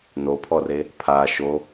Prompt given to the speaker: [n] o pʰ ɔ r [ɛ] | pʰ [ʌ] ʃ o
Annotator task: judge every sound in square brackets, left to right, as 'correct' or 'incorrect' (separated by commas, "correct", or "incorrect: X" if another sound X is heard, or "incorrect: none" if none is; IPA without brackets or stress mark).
correct, incorrect: e, incorrect: a